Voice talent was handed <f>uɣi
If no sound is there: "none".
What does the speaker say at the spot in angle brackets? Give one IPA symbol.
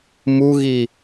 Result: m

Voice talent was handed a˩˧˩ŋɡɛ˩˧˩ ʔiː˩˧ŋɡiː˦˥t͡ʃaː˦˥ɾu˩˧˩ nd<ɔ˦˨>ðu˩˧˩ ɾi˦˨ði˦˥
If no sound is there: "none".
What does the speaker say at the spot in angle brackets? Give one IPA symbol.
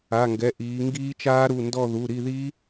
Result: ɔ˦˨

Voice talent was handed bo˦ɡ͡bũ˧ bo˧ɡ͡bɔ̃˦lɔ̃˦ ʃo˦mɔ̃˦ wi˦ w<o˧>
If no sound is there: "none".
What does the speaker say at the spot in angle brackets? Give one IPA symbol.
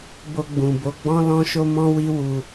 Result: u˧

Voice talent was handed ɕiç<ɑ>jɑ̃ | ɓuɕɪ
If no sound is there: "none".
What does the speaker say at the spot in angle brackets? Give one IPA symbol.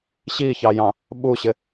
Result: ɑ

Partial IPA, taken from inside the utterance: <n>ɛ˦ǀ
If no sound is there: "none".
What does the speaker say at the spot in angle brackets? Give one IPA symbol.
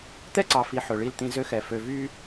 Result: t̪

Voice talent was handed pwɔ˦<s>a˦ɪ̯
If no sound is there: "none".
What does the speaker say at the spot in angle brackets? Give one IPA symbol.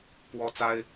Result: t͡s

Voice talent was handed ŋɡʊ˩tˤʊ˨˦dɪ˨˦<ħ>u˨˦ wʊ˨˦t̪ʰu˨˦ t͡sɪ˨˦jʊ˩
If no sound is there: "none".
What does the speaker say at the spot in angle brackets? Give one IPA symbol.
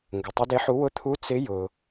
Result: ħ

